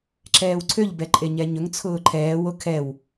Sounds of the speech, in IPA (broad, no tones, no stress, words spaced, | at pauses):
ǁɛːwǀʰøʎbɛ ǃʼeɲɛɲɵŋt͡sʰʊː ǃʰɛːwo kʰɛw